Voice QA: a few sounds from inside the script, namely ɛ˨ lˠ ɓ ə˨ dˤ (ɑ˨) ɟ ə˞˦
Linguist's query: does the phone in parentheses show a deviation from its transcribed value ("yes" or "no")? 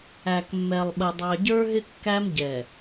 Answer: no